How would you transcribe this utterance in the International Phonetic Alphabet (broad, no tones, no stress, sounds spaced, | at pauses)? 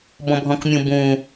b ɔ̃ bʱ ɔ̃ k mʲ ũ b ũ